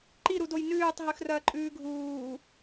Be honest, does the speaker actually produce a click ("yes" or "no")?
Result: yes